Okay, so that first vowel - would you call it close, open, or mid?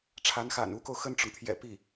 open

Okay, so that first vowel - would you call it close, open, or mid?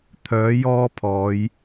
mid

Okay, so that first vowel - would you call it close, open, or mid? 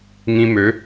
close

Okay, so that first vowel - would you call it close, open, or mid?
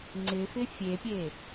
close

